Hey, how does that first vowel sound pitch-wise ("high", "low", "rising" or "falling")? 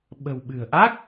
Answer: low